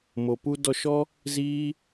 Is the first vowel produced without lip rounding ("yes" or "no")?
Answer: no